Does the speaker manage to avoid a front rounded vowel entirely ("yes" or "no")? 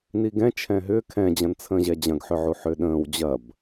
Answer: no